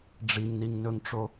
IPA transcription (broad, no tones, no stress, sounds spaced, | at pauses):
ɖ͡ʐ i ŋ n i ŋ n ɵ ŋ ʈ͡ʂ o